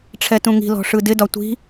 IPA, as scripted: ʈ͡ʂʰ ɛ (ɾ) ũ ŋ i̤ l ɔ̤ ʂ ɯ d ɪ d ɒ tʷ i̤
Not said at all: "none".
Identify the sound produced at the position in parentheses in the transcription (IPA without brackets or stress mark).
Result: t